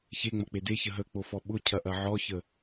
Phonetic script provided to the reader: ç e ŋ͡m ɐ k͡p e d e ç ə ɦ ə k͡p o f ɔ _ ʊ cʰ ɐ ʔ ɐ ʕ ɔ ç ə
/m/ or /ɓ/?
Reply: ɓ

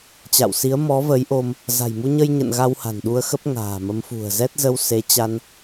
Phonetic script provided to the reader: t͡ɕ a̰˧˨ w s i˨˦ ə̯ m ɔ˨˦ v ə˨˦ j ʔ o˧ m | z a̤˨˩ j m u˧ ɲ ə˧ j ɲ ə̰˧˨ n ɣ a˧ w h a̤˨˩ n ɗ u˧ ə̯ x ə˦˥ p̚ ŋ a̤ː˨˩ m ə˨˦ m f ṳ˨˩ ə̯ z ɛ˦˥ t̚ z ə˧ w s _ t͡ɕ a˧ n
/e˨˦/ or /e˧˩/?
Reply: e˨˦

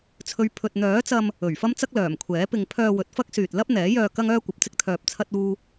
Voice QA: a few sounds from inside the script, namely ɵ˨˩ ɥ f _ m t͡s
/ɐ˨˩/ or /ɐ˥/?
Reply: ɐ˥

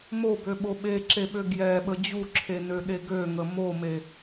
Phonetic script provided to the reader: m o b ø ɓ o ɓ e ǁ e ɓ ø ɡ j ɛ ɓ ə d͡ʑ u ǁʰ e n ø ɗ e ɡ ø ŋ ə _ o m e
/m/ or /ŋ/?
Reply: m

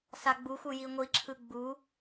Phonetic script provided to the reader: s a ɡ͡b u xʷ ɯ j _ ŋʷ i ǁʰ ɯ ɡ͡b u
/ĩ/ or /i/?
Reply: i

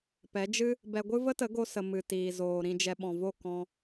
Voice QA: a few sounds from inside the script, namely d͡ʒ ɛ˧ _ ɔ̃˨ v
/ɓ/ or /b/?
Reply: ɓ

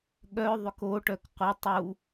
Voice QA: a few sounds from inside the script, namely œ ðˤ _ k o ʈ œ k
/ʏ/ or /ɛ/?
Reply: ʏ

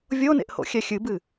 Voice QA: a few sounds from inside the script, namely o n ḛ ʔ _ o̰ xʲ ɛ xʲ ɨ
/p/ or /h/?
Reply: h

